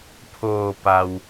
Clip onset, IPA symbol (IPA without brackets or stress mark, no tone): pʰ